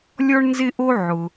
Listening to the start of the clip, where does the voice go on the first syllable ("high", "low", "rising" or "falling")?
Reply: high